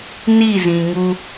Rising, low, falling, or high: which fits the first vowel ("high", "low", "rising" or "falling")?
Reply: falling